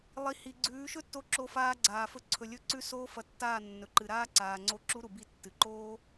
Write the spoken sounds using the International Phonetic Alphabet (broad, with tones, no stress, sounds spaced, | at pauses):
lˠ i˨ h i˨ ɡ͡ǀ ʉː˨˦ ʃ ɵ˦ tː o˧ ǁ o˧ f aː˧ ɡ͡ǀ aː˨ f ɵ˧ ǀʰ ɵ˨ lʲ ɵ˧ ǀ ʉ˧ s oː˦ f ɐ˧ tː aː˦˨ nː ɵ˨ ǃ ɨ˨ ɾ aː˦ ǀ aː˨ ŋ͡ǀ o˦ ǁ u˦ ɾ u˨ b i˦˨ tː ɨ˨ ǃ oː˦